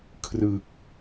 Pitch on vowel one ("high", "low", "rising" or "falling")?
low